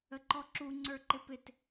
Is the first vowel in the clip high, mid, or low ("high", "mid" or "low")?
mid